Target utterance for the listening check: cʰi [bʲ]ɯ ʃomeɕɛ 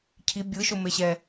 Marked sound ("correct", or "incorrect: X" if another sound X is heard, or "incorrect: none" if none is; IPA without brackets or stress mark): correct